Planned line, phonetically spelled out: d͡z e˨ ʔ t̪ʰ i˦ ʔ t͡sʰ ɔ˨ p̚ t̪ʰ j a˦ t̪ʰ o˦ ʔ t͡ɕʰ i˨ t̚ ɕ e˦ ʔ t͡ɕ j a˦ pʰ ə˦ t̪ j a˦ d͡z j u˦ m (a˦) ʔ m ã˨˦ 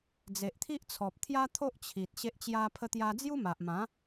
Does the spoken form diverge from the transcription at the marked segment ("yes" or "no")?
yes